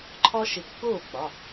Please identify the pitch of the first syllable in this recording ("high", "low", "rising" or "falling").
high